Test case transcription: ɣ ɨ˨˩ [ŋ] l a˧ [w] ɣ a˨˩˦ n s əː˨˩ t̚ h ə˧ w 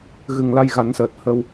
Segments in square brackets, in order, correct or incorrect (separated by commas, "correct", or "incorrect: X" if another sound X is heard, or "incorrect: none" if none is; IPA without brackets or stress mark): correct, incorrect: j